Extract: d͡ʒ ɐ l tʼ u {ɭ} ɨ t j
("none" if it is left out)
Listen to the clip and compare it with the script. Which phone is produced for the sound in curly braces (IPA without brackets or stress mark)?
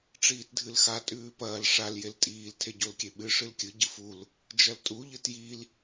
ʎ